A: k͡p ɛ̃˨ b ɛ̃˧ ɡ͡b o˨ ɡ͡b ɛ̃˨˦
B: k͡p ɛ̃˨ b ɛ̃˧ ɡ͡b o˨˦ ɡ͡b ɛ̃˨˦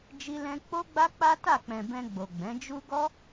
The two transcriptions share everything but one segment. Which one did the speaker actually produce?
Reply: A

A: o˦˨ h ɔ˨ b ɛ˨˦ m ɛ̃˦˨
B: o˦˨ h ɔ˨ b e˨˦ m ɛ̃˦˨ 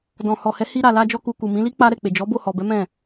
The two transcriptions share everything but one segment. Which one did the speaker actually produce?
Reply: A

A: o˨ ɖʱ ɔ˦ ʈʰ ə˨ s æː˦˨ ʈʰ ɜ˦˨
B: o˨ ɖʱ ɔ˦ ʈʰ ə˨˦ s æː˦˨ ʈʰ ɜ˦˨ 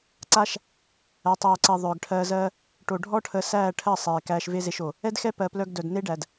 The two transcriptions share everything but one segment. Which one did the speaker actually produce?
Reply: B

